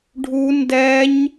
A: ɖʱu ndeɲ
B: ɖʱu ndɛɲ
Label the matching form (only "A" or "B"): B